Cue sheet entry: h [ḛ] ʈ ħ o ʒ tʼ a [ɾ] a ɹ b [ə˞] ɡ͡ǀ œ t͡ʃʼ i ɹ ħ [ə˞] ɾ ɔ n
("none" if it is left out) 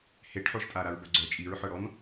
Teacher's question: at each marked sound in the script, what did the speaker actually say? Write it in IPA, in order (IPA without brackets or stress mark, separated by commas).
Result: e, ɾ, ɐ, ə˞